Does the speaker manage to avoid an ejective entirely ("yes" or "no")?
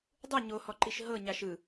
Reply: yes